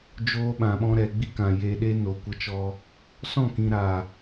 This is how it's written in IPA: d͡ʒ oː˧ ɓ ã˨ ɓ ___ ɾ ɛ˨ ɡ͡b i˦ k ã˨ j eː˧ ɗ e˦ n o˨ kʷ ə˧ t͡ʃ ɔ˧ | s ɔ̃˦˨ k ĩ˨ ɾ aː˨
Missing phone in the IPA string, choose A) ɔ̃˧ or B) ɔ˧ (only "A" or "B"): A